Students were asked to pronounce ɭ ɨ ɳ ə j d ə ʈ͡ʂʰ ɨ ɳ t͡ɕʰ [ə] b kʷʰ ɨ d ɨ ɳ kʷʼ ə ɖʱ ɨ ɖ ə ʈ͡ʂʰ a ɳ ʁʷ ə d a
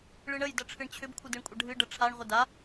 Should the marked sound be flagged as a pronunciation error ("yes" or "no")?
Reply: yes